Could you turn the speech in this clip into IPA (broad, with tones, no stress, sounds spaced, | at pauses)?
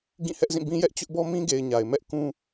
ɡ ĩ˦˨ h ɛ˦ ʔ z ĩ˦˨ b ĩ˦ j ɛ˦ ʔ t͡ɕ ʊ˦ ʔ b ɔ˦ m ĩ˦ ɡ e˨ ɪ̯ ɲ a˨ ɪ̯ m ɛ˦ ʔ k ũ˦